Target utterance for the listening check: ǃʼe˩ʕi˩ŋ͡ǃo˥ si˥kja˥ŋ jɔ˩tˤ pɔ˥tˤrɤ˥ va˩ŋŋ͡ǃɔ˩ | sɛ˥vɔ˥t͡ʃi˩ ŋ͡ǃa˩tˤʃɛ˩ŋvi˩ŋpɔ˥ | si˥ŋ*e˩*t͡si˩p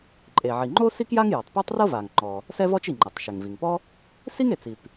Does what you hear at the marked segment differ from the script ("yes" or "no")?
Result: no